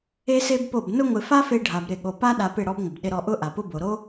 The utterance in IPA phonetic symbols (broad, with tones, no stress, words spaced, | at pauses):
e˦se˦bpo˦˨b nʊ˦ŋʷɪ˧ fa˦fe˧ɖʱa˨b ɾɪ˦˨ɠo˧ pa˦ɗa˧ pɪ˦˨ɽɔ˦bŋʷɪ˨b ɗɪ˧ɾɔ˧ʔʊ˦ ʔa˨pʊ˦bo˨ ɾo˦